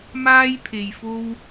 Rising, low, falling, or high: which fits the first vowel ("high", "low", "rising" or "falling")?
high